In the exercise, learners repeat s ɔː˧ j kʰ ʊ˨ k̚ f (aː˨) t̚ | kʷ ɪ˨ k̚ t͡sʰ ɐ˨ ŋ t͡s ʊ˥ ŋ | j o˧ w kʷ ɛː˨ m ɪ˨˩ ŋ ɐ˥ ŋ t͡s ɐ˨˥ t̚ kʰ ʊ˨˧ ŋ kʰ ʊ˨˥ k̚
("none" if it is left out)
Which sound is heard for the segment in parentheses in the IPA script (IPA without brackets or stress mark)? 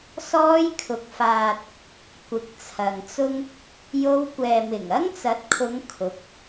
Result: aː˨